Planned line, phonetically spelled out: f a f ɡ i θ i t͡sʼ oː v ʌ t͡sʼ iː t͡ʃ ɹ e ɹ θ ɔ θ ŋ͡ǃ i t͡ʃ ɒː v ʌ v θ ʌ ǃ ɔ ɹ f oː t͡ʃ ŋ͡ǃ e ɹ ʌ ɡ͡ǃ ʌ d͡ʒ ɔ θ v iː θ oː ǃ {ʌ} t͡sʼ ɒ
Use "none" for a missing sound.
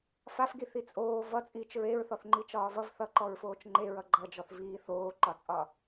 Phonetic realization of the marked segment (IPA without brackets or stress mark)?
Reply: ɒ